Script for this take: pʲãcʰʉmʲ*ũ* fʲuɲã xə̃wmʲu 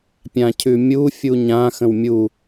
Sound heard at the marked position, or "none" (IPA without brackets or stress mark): u